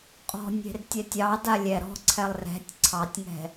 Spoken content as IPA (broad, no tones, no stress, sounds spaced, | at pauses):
qʼ ɔ̤ nʲ e̤ r tʲ ɛ tʲ ɑ d a lʲ ɛ ɾ ɔ̤ ǀʰ ɛ lˠ r ɛ̤ tʲ ǀʰ ɑ tʲ ŋ ɛ̤